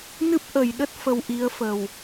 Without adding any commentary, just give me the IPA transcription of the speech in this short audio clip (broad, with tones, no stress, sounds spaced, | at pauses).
n ɨ˦˥ p̚ ʔ ə˨˩ j ɗ ə˦˥ t̚ f ə˧ w ʔ i˨˦ ə̯ f ə˨˩ w